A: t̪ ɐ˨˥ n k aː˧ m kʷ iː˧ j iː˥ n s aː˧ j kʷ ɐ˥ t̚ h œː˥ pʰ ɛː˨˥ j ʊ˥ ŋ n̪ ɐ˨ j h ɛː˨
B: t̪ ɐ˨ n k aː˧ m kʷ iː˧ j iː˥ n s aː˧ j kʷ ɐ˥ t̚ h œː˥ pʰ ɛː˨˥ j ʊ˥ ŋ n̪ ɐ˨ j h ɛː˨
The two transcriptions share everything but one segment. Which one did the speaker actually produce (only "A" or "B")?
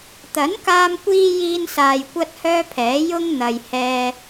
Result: A